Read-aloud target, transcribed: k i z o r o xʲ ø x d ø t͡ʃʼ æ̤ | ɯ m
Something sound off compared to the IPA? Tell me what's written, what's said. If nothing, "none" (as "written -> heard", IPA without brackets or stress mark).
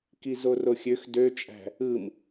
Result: none